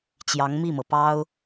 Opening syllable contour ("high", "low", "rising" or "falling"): rising